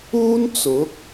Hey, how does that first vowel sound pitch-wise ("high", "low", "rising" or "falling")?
high